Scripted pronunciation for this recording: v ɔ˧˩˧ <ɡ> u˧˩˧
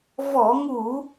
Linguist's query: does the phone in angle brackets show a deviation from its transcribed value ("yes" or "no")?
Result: yes